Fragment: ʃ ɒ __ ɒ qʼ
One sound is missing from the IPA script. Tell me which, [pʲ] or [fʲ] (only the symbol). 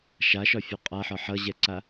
fʲ